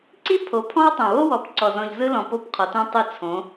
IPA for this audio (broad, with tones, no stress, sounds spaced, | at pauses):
ǀ i˦ pʰ o˨˦ pʰ ɔ̃˦ w tˤ õ˨ w o˦ w ɔ˨ p ǀ ɔ˨ z ɔ̃˨ ʎ z ɯ˦ l ɔ̃˨ p o˦˨ p qʰ ɔ˨ t õ˦ tˤ ɯ˦˨ t͡sʰ õ˨˦